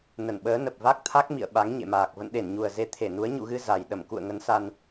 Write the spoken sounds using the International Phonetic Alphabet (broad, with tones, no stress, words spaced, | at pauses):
nə˧˩nɓəː˨˦ nə˨˩p̚va˦˥k̚t̪ʰa˦˥k̚ mḭ˧˨ə̯ ɓa˨˦ŋɲḛ˧˨maː˨˩k̚ və̰˧˨nɗe˧˩nɲu˨˩ə̯ze˨˦ t̪ʰe˧˩nu˨˦ə̯ ɲṵ˧˨ɣɨ˧ za˨˩j ɗə˧˩mkṵ˧˨ə̯ ŋə˨˦n sa˧n